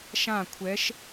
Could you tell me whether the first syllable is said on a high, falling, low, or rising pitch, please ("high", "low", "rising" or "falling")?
falling